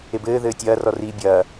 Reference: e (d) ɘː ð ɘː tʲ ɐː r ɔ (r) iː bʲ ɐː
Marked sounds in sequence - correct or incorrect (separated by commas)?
incorrect, correct